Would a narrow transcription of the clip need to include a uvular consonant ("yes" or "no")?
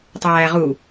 yes